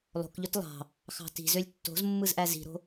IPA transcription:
lˠ o̤ k ʎ ø t lˠ ɑ̤ | x ɑ̤ t i̤ z ø lʲ tː o̤ z mː ɯ z ʔ æ z i̤ ɾ o̤

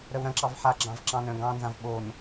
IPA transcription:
ɾ œ w ɾ ɐ̃ ǁ ɑ v ħ a ɡ͡ǁ ɑ̃ v ǁ ɑ̃ n œ̃ ɡ ɑ̃ n z ã v ɓ o n

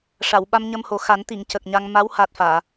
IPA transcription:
ʂ a˨˩˨ w ɓ a˧ m ɲ ə˧ m h o˨˩ x a˨˩˦ n t̪ i˨˩˨ ŋ c ə˨˩ k̚ ɲ a˧ ŋ m a˧˥ w h a˨˩ t̚ f aː˨˩˨

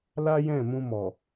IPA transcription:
l a˦ j ɛ̃˦˨ m ũ˧ m ɔ˨

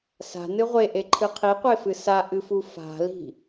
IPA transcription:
s a̤ n ɨ ʁʷ e ʔ e ǃʰ ɨ qʰ i qʷ e f ɨ s a ʔ ɨ f u f a̤ l i̤

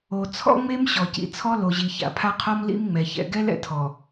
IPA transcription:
o˨ t͡sʰ ɔ̰˦ ŋ͡m e˦ m ɕ ɔ˨ c ḭ˨ t͡sʰ ɔ˦ l o˨ ʑ i˨ ç a̰˨ pʰ a˦ qʰ ɔ˦ m l ḭ˦ m ŋ͡m ɛ˨ ç ɛ̰˨ ɡ ɛ˦ l ɛ̰˨ tʰ ɔ˨

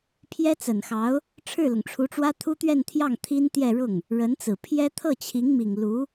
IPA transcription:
pʰ j ɛ˥ t͡s ə˨˩ n x ɑ˧˥ ʊ̯ | ʈ͡ʂʰ ɻ̩˥˩ l ʊ˩ ŋ ʈ͡ʂʰ u˧˥ ʈ͡ʂ w ä˥ t̪ʰ u˥ t̪ ɥ ɛ˥˧ n t̪ʰ j ɑ˥˩ ŋ t̪ʰ i˥ n t̪ j ɛ˥˧ ɻ ʊ˥˩ ŋ | ɻ ə˧˥ n t͡s ɹ̩˨˩ pʰ j ɛ˥ t̪ʰ ɤ˥˩ t͡ɕʰ i˧˥ ŋ m i˨˩ ŋ l u˧˥

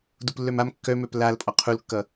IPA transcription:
d u p lː œ m a m kː œ m œ p l a l pʼ ɒ qʰ u l kː ʌ

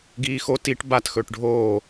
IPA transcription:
ɡ iː x o t i ʈ b a t x ɵː ʈ ɖʱ oː

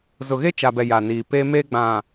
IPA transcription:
z ʊ˨ ɣ e˦ t͡ʃ a˨ b ɛ˨ j a˨ n iː˨ p e˦ m e˦ ɡ͡b ã˨

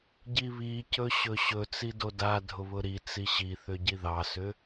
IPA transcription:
ɟ i β i c ɵ ɕ ɵ ɕ ɵ t͡s i d o d a dʱ ʊ β ʊ ɾ i t͡s i ɕ i θ ʏ ɟ i ð ɑ s ʏ

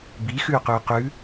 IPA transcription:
b i x ʉ y̯ q ʉ u̯ q ʉ

